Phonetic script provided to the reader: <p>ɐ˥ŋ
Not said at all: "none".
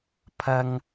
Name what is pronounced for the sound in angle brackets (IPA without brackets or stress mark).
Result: pʰ